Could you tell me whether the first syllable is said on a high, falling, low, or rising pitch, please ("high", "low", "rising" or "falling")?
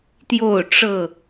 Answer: falling